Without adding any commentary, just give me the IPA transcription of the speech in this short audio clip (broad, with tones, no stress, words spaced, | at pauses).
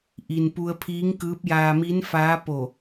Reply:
ʔi˩npu˧ə̯pʰiː˧˥ŋkɯː˧˥p̚ jaː˧mi˧˥nfaː˧˥ po˧˩